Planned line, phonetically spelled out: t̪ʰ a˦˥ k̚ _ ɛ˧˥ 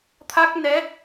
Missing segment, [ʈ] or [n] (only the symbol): n